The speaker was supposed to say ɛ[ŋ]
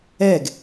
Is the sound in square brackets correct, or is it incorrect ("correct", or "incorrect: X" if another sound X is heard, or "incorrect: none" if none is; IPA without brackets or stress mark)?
incorrect: ɡ